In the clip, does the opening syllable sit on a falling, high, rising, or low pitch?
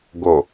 low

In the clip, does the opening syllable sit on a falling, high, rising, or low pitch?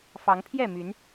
rising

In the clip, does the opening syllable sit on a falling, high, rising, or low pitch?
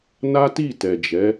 high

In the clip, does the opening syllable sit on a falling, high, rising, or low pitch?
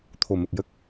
low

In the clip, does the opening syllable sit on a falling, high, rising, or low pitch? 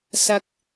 low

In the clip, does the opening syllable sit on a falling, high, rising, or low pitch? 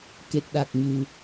low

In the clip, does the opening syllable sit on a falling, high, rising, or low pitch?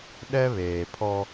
high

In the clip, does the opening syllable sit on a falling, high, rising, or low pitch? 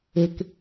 low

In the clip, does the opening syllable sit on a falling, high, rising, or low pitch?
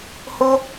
high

